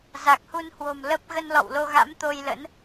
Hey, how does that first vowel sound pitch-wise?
low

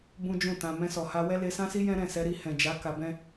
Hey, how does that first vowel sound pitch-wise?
high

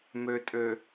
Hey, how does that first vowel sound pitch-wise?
low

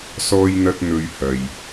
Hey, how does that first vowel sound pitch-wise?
high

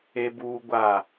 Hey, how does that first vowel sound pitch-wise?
high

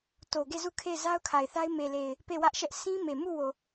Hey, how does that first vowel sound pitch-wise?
low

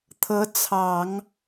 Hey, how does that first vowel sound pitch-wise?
rising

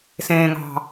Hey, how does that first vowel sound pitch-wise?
low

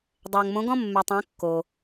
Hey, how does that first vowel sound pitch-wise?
low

